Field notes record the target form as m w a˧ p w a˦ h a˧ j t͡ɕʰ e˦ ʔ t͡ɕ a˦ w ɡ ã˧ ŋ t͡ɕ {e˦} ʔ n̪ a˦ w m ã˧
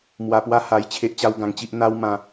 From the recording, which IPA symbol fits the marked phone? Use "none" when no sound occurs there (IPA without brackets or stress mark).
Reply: i˦